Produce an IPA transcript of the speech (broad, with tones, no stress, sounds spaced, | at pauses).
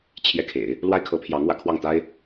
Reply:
t͡ɕʰ j ɛ˥˩ kʰ ḛ˨˩˦ ɪ̯ | l w a˥ ɪ̯ kʰ ɤ˧˥ pʰ j ɑ˧˥ ŋ w ä̰˨˩ kʰ w ɑ˥˩ ŋ t̪ a˥ ɪ̯